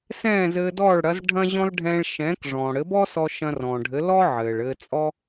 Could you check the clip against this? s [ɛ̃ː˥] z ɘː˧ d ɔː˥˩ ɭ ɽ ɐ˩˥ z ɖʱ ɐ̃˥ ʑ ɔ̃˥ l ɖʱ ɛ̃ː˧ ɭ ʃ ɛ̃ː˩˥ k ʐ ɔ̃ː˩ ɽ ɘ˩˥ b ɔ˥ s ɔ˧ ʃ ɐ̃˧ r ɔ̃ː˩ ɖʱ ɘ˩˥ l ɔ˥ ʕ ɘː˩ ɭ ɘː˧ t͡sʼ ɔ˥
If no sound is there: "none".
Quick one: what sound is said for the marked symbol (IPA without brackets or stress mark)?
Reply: ɛ̃ː˥˩